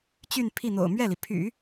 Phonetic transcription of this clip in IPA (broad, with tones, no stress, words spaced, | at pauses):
t͡ɕy˥˧npʰi˥˩n̪o̰˨˩ʊ̯ mɥɛ˥˩li˩pʰy̰˨˩˦